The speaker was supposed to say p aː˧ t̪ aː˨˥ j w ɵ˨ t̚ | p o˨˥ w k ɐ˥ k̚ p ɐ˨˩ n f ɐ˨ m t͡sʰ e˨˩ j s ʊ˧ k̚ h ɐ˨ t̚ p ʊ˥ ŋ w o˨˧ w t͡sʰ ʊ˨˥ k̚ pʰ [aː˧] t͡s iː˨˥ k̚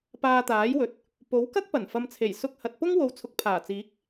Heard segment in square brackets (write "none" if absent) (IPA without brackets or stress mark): aː˨˩